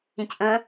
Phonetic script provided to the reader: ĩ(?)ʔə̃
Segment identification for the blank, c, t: c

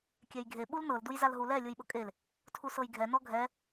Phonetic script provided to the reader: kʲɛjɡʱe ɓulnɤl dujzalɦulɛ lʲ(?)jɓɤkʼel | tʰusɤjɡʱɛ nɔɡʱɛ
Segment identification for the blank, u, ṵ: u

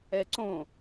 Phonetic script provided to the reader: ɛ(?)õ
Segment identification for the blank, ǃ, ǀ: ǀ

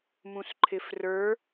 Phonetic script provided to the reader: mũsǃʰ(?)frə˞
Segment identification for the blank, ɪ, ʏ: ɪ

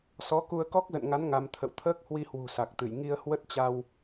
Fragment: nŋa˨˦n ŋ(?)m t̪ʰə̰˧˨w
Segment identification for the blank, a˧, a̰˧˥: a˧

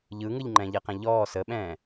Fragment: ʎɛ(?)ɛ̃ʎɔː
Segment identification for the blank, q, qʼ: q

